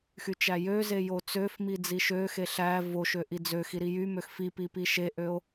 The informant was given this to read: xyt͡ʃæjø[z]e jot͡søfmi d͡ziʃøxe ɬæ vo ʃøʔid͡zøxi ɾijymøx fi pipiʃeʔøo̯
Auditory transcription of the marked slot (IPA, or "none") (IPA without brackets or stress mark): z